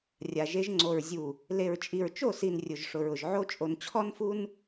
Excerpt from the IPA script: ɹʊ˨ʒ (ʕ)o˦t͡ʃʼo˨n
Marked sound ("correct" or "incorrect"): correct